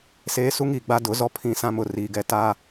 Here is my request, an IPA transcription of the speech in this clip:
s eː˦ s u˦ ŋ iː˨ ɡ͡b a˦ d ʊ˨˦ z ɔ˦ pʰ ĩ˦˨ s ã˦ m ʊ˨˦ r iː˨ ɡ ɛ˦ t a˦

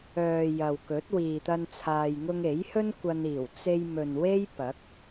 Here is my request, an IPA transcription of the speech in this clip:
œː˨ j ɐ˨ w k ɵ˨˥ t̚ w iː˨ t̪ ɐ˧ n t͡sʰ aː˨ j ŋ ʊ˧ ŋ e˨˥ j h ɵ˥ n kʷ ɐ˧ n iː˨˩ w t͡s e˧ j m ɵ˨ n w e˥ j p ɐ˨˥ k̚

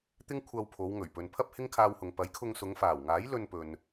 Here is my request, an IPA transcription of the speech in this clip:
t̪ ɪ˥ ŋ kʷʰ ɐ˧ w pʰ o˨˧ w ŋ ɵ˨˩ ɥ p ɵ˨ n pʰ ɐ˥ p̚ h ɪ˥ ŋ kʰ aː˧ w h ʊ˨ ŋ p ɐ˨˥ j kʰ ʊ˧ ŋ s ʊ˨˧ ŋ f aː˨˩ w ŋ aː˨˥ j l ɵ˧ n p ɵ˨ n

